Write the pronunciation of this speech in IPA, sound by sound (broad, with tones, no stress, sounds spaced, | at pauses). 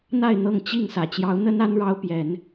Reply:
n̪ a˥˨ ɪ̯ n̪ ɤ˥˨ ŋ t͡ɕ i˥˨ ŋ s ä˨˩ t͡ɕ j ɑ˨˦ ʊ̯ n̪ ə˦ n a˦ n ɻ ɑ˦ ʊ̯ p j ɛ˨˦ n